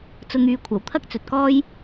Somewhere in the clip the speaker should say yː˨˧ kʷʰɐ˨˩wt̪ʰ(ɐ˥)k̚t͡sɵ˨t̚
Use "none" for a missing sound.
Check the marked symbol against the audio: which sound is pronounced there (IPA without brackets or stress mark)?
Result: ɐ˥